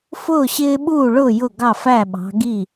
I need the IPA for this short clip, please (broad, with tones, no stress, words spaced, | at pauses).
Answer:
fʊː˥˩ ɕɪː˦ɓuː˥˩ɭʊː˥˩ jʊ˥˩ɡɑ˥˩fæ˥˩ ɓɑ̤˨˦ɡi˥˩